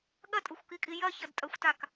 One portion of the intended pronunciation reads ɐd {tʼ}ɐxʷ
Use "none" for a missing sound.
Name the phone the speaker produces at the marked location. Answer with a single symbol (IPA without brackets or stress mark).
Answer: tʼ